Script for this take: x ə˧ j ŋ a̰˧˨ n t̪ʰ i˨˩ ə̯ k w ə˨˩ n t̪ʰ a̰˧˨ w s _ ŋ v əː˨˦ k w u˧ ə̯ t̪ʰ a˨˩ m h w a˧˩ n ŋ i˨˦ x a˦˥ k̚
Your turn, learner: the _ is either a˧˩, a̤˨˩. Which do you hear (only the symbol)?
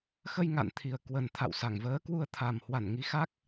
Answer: a˧˩